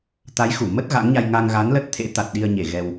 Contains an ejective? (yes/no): no